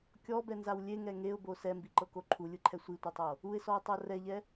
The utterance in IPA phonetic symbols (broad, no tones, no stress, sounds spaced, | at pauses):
kʲ ɔ b ɛ n z a w lʲ e ŋ ɛ ŋ e ʊ̯ b o s ɛ m b i ǃ ɤ k o ǃʰ u lʲ ɯ ǃʰ ɛ sʷ i tʷ a tˤ o | u ɪ̯ s ɔ ɪ̯ tˤ ɤ r ɛ ʎ ɛ